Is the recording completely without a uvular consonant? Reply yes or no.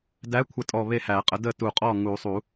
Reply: no